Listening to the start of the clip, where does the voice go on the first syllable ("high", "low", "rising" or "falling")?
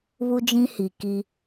high